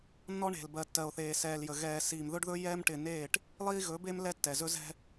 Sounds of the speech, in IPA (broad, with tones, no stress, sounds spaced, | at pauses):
nː ɔ˦ ɳ e̤˨ l b ɜ˨ tː ɜ˨ o̯ θ eː˨ s ɛː˨ l j ə˨ ɣ ɛː˨ s iː˨ m ð ɵ˦ ɖ ð ɵ˦ j ɛː˦ m ʈ ɪː˨ n eː˦˨ ʈ | lˠ iː˦ ɣ ɵ˨˦ b eː˦ m l ɛ˦ tː ɛ˨ z ɵ˦ z ɛ̤˦